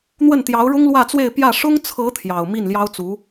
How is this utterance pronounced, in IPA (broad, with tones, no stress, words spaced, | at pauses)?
n̪wə˥˩nt̪jɑ˧˥ʊ̯ ɻʊ˥ŋlwä˥˧t͡swe˥˧ɪ̯ pjä˥˩ ʂʊ˥ŋt͡sʰɤ˧˥ t̪ʰjɑ˨˩ʊ̯ mi˥˩nljɑ˥ʊ̯t͡su˧˥